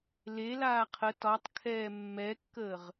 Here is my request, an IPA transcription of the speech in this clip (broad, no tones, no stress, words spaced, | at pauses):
le laːqʰə tɒtˤ kʰɛːmːɛkːəːʁ